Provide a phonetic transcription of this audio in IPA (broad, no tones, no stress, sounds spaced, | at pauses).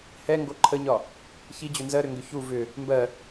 h ɛ ŋ ɡ o ǃʰ ə ɲ ɒ | ç i d͡ʑ ʏ n z ɜ ɾ ʏ ŋ ɡ ʏ ç u v ʏ | m b ɜ